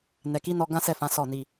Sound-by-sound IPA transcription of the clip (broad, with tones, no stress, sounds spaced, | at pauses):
n ɛ˨ k i˨˦ n ɔ˧ ɡ ã˦ s ɛ˦˨ f ã˨˦ s ɔ˦˨ n i˧